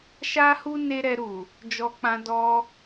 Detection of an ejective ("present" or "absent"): absent